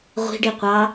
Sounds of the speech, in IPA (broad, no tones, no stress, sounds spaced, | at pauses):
ʁʷ i̤ ɖ i qʷ ɑ